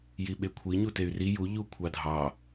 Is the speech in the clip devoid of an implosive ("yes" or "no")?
no